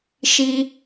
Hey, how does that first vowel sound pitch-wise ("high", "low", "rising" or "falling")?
high